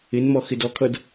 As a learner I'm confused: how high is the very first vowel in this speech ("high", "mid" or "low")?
high